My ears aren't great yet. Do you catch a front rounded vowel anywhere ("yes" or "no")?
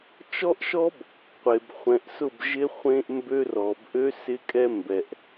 yes